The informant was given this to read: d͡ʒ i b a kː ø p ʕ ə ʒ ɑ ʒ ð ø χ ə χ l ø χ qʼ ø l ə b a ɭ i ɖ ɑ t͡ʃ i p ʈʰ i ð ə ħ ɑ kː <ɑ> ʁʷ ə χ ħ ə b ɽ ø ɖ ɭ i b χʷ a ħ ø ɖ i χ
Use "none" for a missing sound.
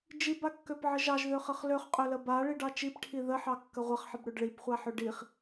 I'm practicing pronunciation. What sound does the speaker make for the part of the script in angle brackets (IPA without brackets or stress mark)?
ə